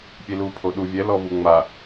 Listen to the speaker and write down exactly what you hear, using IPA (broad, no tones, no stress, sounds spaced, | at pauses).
pʲ e l u pʰ o ɗ u vʲ ɛ l ɔ v u ŋ͡m a